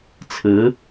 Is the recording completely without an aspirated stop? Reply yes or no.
no